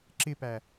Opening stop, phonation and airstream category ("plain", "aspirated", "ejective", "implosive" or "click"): click